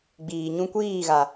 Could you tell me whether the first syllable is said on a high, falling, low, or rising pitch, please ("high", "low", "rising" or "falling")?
low